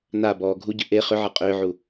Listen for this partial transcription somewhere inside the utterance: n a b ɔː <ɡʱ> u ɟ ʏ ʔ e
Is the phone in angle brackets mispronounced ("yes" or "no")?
no